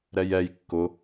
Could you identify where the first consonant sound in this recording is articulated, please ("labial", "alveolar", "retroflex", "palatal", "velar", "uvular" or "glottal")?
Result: alveolar